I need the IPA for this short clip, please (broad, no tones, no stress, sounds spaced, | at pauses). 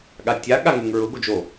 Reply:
ɠ a tʲ a ɠ a ŋ ʉ ŋ ɹ ʊ ɡ o d͡ʒ o